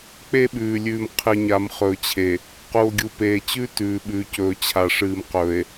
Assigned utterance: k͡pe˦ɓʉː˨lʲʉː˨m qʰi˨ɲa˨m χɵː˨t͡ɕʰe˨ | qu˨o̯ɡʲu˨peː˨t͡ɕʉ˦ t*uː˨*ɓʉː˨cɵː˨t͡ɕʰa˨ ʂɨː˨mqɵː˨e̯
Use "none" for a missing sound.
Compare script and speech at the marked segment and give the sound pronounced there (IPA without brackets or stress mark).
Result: ʉː˨